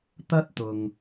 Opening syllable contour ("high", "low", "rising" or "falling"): high